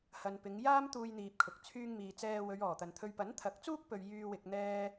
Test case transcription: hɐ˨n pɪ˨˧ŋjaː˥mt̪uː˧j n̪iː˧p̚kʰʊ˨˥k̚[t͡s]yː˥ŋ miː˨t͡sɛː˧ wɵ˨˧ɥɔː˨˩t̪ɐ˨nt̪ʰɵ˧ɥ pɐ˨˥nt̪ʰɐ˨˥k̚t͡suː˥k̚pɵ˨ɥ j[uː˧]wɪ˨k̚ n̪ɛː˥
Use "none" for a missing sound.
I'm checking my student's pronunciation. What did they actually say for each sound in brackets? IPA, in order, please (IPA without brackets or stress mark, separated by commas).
t͡sʰ, yː˧